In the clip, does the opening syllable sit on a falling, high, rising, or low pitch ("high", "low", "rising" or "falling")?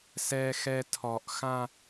low